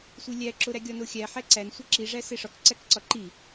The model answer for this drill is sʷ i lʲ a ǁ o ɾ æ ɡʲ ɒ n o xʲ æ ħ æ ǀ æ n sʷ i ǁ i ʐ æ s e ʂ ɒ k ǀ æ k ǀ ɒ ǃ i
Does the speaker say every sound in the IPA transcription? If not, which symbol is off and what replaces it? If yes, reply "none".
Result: a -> æ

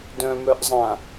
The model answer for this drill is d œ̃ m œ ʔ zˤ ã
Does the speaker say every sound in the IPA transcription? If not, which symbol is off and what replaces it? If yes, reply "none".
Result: none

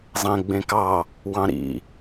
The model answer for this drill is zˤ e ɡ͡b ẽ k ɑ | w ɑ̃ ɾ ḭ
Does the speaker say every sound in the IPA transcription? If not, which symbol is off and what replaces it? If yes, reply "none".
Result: e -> ẽ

